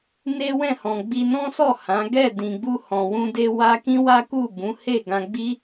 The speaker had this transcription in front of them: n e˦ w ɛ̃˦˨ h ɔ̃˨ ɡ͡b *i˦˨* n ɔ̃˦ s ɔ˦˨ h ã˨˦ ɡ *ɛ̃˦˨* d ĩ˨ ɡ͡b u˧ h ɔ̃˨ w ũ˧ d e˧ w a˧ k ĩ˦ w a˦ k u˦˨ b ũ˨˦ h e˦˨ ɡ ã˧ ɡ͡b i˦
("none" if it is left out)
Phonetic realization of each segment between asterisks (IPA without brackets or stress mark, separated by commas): i˧, ɛ˦˨